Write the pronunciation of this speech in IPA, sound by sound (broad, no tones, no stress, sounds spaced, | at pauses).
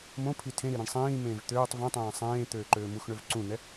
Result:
m õ pʰ i tʰ ẽ ɾ i ɾ ĩ ɳ sˤ ĩː m ẽː v t̪ øː tˤ v ẽ tˤ ẽː sˤ ẽː t̪ øː ǃ øː m u x ɳ ø v ǀ ũ n̪ ɛ